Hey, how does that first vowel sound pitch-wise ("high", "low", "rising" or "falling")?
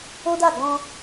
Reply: high